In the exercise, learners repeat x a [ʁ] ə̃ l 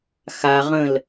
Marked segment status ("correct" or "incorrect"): correct